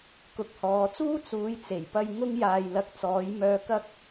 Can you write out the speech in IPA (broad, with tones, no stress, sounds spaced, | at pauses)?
k ʊ˨ k̚ h ɔː˨ t͡s uː˥ t͡s uː˨˧ j t͡s e˨˩ j p ɐ˧ j ŋ ʊ˥ ŋ j aː˧ j l ɐ˧ k̚ t͡s ɔː˨˥ j m œː˧ k ɐ˥ k̚